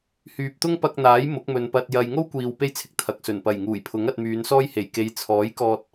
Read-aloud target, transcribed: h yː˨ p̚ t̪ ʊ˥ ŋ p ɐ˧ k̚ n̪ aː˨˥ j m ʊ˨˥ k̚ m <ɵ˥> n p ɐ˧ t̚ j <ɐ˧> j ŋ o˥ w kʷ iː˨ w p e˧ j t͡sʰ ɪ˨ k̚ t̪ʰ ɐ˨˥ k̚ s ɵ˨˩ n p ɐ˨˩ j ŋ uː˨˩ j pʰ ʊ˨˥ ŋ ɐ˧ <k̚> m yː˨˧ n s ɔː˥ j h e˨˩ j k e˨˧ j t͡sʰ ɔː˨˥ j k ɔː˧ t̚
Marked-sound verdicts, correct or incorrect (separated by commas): incorrect, correct, incorrect